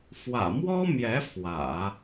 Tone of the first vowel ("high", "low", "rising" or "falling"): low